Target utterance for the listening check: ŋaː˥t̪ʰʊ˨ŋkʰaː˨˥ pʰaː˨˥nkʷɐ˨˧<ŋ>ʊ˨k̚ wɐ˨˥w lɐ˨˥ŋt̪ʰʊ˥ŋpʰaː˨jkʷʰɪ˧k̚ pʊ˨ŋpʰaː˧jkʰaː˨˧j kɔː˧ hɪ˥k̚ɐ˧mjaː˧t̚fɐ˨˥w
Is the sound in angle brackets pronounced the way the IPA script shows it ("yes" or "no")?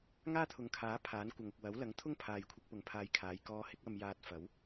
yes